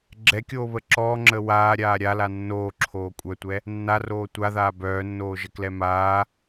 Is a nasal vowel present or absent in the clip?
absent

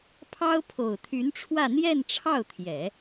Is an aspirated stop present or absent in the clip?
present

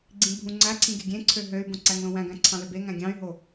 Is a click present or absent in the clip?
present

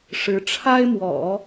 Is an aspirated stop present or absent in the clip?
present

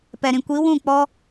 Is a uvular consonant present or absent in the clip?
absent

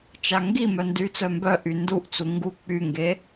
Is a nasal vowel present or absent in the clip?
absent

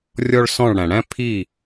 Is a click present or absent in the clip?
absent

